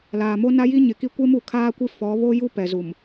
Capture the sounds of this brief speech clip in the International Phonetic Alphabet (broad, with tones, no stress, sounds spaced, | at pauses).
l aː˨ m o˦ n a˦ j i˦ ɲ ɪ˨ k i˦ kʷ e˦ m u˨ kʰ aː˦ kʷ i˦ f ɔ˨˦ β o˦ j u˦ p ɛ˨ z u˨ m